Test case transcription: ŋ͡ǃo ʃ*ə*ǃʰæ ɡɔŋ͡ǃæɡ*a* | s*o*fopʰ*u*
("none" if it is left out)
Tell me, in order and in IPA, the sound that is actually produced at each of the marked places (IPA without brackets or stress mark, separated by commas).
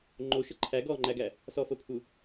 ə, æ, ɔ, u